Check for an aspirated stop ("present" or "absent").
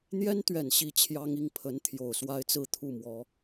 present